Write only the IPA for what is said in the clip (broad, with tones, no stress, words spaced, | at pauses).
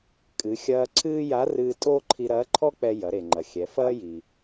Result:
kʼɨ˩˧ xʲɐː˧ ǀʰɨː˥ ja˧˥ rɨː˧tʼoː˥ǃʰi˧ ɾɐː˧˥ǃʰɔ˥k͡pɛ˧ jɐ˩˧ɾe˩ ŋ͡ǃɐ˩xʲɛ˩˧ fɐː˥ji˩